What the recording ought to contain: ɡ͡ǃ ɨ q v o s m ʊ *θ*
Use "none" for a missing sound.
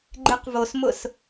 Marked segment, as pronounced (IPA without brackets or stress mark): s